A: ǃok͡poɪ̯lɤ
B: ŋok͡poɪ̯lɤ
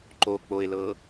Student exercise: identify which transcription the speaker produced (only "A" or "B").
A